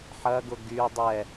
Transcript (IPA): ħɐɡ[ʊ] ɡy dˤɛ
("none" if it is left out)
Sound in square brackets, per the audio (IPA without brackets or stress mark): ʊ